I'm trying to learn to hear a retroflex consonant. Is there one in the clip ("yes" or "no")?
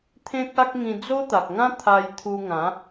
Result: no